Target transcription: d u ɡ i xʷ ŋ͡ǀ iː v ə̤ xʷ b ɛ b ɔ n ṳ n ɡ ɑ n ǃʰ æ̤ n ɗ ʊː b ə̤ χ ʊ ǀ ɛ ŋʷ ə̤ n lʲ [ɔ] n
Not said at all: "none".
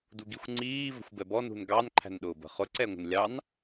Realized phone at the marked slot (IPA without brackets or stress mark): ɑ